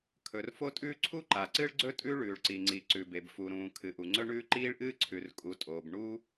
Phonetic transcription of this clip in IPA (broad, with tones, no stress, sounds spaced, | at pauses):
kʰ ɵ˩ r f o˥ tʼ ʉː˥ ǀʰ u˥ ǃ a˩ ǀ ɨ˥ ɭ ɡ͡ǀ ɵ˥ tʼ ʉ˥ ɭ ʉː˩ ɭ ǀ i˩ ŋ͡ǀ i˩ ǀ ʉ˩ b e˩ b f u˩ ɾ ũː˩ kʰ ɨ˩ ʔ u˩ ŋ͡ǀ ɵ˥ ɳ ʉː˥ ǃ iː˥ ɭ ʔ ɨː˥ ǀʰ ʉ˩ r kʼ u˩ tʼ oː˩ b ɳ u˥